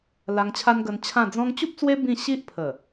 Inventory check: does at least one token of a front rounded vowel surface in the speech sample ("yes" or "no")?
no